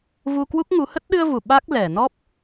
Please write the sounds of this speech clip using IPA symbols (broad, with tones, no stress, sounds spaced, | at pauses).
v u˧ k w u˦˥ k̚ ŋ u˨˦ h ə˦˥ t̚ ɗ ɨ˧ ə̯ v u˧˩ ɓ a˦˥ k̚ l ɛ˧˩ n ɔ˦˥ p̚